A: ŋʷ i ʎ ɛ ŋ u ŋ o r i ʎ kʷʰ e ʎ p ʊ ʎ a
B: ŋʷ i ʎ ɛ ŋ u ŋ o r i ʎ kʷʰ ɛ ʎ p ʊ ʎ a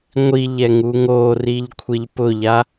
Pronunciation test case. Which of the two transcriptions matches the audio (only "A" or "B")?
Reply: A